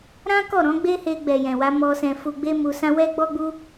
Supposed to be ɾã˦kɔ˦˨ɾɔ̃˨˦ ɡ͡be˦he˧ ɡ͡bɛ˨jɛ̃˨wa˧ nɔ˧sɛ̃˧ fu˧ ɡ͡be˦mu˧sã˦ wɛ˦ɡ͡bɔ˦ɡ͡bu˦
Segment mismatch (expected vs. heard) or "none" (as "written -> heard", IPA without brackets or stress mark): n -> m